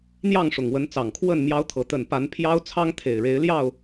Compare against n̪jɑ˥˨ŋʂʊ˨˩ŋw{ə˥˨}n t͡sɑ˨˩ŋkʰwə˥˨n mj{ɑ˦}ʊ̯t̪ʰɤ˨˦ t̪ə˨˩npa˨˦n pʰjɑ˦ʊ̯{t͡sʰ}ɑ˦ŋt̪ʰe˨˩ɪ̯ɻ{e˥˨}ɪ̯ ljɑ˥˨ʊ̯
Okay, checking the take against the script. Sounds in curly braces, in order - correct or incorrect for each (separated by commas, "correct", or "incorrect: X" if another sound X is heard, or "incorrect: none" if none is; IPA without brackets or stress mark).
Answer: incorrect: ə˨˦, correct, correct, incorrect: e˨˦